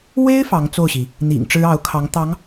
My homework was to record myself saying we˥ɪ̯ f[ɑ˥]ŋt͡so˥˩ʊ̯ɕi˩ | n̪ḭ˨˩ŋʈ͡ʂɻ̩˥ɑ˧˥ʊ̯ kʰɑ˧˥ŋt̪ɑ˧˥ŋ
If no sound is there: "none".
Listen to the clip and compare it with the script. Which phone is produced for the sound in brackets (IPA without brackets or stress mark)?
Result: ɑ˧˥